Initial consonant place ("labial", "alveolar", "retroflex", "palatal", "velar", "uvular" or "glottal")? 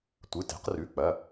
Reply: alveolar